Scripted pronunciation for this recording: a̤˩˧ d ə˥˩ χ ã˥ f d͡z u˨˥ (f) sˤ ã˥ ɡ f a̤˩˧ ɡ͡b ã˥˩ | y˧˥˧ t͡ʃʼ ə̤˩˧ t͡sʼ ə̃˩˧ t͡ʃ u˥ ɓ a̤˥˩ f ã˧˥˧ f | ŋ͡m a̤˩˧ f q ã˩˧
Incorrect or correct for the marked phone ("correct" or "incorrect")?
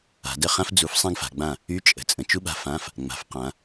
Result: correct